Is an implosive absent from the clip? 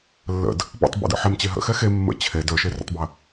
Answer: yes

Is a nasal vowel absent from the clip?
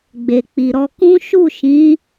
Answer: no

